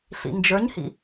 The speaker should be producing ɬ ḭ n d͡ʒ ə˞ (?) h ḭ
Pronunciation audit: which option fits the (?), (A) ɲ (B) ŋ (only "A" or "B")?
A